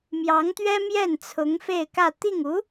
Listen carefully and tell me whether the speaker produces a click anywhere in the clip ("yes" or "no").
no